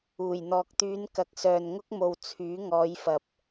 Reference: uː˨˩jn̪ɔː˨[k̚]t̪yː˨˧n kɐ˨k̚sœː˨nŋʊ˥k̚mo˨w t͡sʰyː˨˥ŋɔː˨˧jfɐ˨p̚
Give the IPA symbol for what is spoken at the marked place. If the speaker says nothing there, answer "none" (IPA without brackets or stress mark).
k̚